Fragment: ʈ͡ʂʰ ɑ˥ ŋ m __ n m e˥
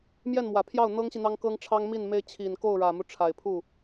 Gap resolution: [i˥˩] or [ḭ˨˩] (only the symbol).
i˥˩